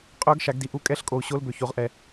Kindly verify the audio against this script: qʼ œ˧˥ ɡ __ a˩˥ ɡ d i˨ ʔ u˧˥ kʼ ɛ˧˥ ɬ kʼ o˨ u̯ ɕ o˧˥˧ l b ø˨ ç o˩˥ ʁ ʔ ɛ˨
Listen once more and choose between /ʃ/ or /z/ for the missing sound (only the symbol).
ʃ